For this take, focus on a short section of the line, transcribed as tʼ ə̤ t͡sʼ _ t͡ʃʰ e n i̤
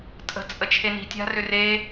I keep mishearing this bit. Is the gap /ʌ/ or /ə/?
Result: ə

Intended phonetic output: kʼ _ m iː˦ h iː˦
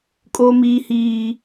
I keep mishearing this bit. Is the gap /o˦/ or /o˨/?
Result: o˦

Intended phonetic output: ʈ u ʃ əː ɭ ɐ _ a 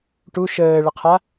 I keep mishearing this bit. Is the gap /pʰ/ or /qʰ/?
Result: qʰ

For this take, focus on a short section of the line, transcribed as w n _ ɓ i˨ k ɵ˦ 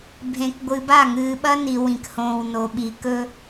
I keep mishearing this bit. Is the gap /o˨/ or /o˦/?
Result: o˨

